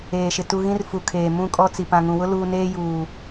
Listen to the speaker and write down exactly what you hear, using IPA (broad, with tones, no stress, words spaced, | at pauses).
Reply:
eː˨ʃɪ˨ tu˨ ɣĩ˦r fu˨kʰeː˨ mũ˦˨kʼɔ˦t͡si˨ pã˨ŋũ˨wʊ˦ luː˦ neː˦juː˨